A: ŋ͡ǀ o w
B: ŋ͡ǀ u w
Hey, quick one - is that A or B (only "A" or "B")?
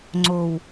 A